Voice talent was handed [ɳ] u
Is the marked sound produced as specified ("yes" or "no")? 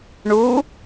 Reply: yes